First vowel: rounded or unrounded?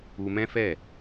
rounded